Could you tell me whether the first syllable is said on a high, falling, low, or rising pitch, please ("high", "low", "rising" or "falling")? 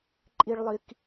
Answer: high